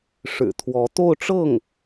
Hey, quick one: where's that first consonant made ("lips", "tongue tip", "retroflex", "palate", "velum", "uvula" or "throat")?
retroflex